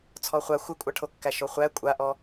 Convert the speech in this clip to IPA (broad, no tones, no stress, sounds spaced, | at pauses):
t͡sʰ ɔ χʷ a xʷ ɪ kʷʼ a ʈʰ o kː æ ʃ o χʷ æ kʷʼ a ʔ ɔ